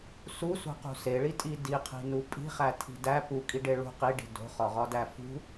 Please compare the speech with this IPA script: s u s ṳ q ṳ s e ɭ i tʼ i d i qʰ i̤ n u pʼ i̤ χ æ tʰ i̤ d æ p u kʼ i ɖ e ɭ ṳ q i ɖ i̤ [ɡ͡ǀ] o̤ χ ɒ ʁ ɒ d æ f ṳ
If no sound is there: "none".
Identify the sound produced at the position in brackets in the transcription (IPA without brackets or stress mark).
d